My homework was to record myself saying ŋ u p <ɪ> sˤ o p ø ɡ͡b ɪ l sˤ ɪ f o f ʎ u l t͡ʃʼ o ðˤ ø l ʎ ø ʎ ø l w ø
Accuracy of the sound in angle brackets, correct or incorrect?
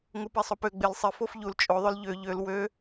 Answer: incorrect